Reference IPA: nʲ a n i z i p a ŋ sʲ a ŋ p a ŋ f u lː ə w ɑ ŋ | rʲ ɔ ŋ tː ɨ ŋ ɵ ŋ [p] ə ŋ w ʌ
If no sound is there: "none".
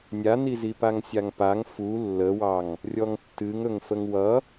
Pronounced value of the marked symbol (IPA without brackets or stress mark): f